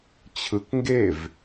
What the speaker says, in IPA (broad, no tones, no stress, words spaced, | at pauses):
t͡ɕʰɯk ŋɡev